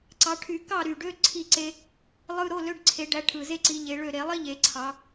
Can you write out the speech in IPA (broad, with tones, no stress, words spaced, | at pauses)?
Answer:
ǀɑ˨˦ ʈʰy˨˩˦kɑ˥˨ɾy˨˩ɖø˧˥˧ ǀʰi˥˨ǀe˥ | lˠɯ˧˥˧ɾo˧˥˧lø˧˥˧ɖ ǀʰe˨˩˦ɖæ˨˦ ʈʰɯ˨˩ ze˥ǀi˨˦ ʎe˨˦ɭø˥˨ ɾe˨˩˦lˠi˥ʎe˨˩˦ ǀʰɑ˨˦